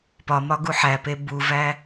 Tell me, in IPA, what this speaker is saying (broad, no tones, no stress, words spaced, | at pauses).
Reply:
pɒmɒ ɡuħæpe buvæ